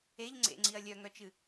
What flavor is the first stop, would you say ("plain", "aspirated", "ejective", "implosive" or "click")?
click